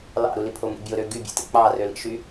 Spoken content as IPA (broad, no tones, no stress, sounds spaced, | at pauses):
l ɑ̰ ɾ u l i pʰ o m ṵ bʲ o ɾ ø ɡ y bʲ ḛ t ḛ k͡p ɑ r ø l ḭ ʃ y